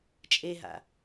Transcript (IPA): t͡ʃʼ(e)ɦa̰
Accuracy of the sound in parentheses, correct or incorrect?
correct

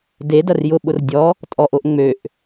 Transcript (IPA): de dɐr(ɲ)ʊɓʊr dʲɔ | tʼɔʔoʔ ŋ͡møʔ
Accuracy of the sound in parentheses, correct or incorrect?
incorrect: j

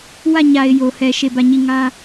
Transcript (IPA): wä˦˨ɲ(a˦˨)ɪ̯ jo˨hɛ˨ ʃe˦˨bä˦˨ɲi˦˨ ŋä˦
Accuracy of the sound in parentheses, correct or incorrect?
incorrect: a˨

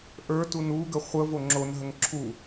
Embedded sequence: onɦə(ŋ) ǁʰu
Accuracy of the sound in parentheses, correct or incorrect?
correct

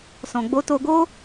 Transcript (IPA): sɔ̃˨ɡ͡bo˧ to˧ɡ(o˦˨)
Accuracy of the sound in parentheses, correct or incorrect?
incorrect: o˦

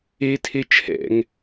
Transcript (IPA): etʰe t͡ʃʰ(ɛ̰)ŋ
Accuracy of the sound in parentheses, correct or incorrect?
correct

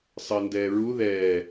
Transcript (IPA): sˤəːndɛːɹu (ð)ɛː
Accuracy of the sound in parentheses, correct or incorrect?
correct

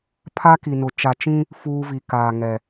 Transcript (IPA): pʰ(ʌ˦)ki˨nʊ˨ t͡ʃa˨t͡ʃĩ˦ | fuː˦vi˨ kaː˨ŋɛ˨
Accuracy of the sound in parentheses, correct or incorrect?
incorrect: a˦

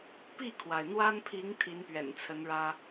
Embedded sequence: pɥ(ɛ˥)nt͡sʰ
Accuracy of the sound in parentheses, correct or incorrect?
incorrect: ɛ̰˨˩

